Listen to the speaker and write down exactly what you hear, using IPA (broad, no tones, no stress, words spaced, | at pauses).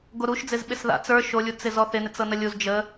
ɡoɾuʃd͡zɪz ɓɪsða̰t͡s ə˞ ʃolʲut͡sɪ zɔθɪnɪt͡s ɤnəlʲuz d͡ʒə